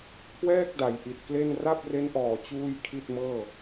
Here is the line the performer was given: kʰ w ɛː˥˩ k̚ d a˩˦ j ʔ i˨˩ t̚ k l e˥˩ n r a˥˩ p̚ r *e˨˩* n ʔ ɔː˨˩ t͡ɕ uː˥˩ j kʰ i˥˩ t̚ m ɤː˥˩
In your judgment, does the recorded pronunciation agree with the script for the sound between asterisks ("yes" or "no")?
no